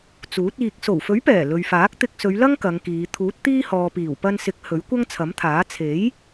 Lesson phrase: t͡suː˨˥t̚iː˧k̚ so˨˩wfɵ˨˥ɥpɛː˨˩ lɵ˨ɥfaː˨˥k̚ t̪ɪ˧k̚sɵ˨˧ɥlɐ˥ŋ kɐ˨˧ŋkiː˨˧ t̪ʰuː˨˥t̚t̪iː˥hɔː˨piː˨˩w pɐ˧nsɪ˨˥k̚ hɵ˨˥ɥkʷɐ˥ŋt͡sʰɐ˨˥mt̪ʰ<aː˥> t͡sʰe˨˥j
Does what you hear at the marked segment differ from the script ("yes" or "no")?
yes